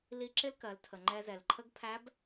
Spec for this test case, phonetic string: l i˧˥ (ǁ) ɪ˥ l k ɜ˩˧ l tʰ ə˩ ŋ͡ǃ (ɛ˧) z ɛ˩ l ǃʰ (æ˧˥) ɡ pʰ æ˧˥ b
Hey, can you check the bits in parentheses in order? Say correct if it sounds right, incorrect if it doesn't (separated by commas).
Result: correct, correct, incorrect